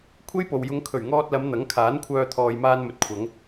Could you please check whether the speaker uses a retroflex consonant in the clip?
no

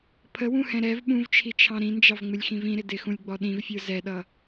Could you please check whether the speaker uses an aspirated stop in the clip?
yes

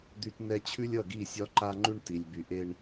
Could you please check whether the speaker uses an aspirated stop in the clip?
yes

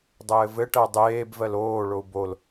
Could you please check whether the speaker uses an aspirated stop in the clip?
no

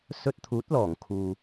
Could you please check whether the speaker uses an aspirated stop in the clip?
yes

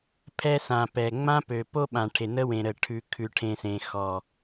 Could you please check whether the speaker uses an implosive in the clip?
yes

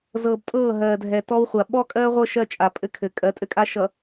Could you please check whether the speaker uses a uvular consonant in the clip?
yes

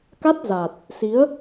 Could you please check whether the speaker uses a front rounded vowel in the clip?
no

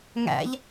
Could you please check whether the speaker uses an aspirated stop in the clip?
no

